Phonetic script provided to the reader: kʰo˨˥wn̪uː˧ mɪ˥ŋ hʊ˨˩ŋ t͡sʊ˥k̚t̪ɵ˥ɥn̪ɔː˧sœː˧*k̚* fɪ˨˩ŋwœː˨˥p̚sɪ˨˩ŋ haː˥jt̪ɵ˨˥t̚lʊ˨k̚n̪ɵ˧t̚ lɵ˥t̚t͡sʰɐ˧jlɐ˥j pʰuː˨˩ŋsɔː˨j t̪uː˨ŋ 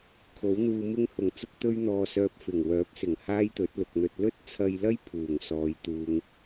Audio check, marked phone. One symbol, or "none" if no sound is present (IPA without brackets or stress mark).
p̚